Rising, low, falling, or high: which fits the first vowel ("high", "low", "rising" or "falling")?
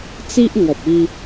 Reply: high